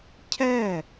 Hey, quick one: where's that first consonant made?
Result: palate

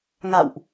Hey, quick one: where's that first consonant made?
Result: velum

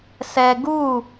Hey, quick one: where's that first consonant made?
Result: tongue tip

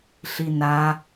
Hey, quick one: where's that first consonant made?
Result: tongue tip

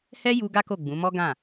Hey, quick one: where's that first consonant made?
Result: throat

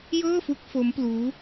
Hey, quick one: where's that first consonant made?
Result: palate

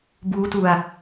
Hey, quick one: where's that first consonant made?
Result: lips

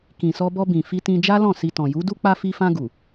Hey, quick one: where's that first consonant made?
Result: velum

